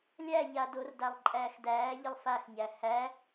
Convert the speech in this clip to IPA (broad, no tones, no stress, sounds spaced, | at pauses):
lʲ æ ʎ a d o r d a lˠ ǃʼ æː x d æː ʎ ə lˠ f a x ɲ æ h æ